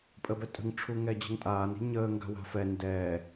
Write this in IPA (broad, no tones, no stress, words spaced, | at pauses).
pʼəbɛtʼə̤ŋ ʈ͡ʂʰuŋɛd͡ʑə̤ŋtʼaːn i̤ɲəː ŋɡa̤wa̤fɛ ndɛ